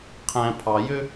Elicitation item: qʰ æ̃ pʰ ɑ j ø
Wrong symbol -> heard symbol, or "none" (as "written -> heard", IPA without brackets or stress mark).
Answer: none